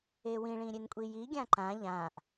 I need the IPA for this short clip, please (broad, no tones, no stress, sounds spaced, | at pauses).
e w ĩ ɭ ĩ ɾʲ e n kʷʼ i j i ɡʲ ã ǃ ã ʎ ã ʔ